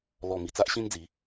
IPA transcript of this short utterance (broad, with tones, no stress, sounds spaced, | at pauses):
l ɔ˨˩ m i˨˩ t͡s a˦ ʔ ɕ ĩ˦ n d͡z i˨˦